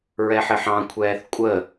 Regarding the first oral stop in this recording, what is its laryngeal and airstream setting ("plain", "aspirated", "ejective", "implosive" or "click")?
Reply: aspirated